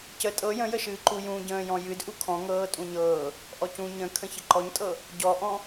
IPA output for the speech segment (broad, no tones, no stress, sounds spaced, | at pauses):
c ə tʼ ɤ j ə̃ j ə ʃ ɨː ǃ u j ũ ɟ ə̃ː j ɔ̃ j ɨ d ʔ u kʰ ɔ̃ ŋ ɤː tʼ ũ ɲ ɤː | ʔ ɔ c ũ ɲ ə̃ kʰ ə̃ ç ə ǃ ɔ ɲ tʼ ɤ | ɟ ɔ ʔ ɔ̃